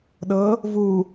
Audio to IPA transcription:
ɗ ɤ | v u

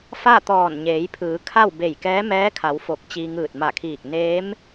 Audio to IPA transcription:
f a˥˨ t̪ ɔː˧˩ n ɲ eː˩˧ j pʰ ɯː˩˧ kʰ a˥˨ w b e˧˩ j k ɛː˧˥ m ɛː˧˥ kʰ a˩˧ w f o˧˩ k̚ t͡ɕ iː˧ ŋ ɯː˧˩ t̚ m a˧˩ kʰ iː˧˩ k̚ n eː˧˥ m

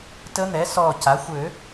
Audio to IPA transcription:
t ə˧˥ n̪ ɛ˩˥ s ɔ˧˩ c a˩˥ xʷ ø˨˩˦

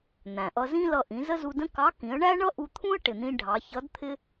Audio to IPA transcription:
n̪ æ̃˩ ʔ ʌ˧ z ĩ˥ l ʌ˧ ʔ ĩ˩˧ z ə˥ z u˧ d ə̃˥ k ɑ˧˥ k ĩ˩˧ ə̯ ɳ æ˥ ɳ ʌ˥ ʔ u˧ t̪ʰ ũ˥ ə̯ ʈ ɪ˩ n̪ ĩ˧ ɖʱ ɑ˩˧ ç ʌ˧˥ d t̪ʰ ɪ˥

